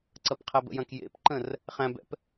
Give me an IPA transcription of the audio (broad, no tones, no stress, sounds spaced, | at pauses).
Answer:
ǀ ɐ p qʰ ɛ b ə̰ j ɐ̃ k j ḛ p ǃ ə̃ r | χ æ̃ b ɛ̰ p